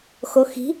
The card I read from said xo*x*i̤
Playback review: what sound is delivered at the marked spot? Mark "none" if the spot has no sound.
x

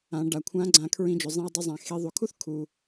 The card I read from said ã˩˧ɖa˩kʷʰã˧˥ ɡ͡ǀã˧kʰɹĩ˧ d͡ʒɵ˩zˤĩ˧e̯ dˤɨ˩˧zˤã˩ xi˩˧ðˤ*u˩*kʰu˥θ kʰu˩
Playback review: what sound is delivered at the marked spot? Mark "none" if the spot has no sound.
u˩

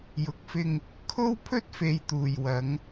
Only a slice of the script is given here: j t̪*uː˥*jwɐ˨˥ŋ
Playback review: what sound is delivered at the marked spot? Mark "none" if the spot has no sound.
uː˨˩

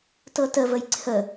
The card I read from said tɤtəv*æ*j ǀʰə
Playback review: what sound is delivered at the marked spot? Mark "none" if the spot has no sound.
ə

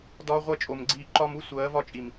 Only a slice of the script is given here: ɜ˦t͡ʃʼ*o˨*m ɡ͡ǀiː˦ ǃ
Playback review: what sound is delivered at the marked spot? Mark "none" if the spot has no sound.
o˨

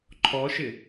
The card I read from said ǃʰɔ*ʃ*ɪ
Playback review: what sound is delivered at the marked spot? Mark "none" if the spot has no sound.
ʃ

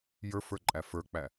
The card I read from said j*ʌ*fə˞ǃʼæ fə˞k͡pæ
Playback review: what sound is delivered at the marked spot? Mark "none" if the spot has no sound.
ə˞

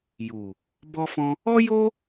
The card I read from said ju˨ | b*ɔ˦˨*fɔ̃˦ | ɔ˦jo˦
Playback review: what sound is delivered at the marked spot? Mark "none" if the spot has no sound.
ɔ˦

